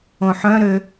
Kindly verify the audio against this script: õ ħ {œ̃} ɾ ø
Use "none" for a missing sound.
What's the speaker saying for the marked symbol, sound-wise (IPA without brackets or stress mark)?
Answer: œ̃